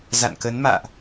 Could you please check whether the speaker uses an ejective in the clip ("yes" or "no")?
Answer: no